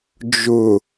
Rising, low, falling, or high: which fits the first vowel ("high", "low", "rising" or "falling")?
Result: low